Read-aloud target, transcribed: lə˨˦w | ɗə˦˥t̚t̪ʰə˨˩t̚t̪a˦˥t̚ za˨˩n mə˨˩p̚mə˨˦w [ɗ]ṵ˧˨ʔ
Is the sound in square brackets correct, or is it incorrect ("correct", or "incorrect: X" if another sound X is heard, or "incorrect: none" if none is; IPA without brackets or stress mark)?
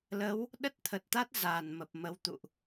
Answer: incorrect: t̪